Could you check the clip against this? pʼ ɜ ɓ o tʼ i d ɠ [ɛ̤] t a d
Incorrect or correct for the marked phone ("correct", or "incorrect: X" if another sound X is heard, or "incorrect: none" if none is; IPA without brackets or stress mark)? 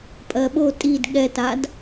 incorrect: ɛ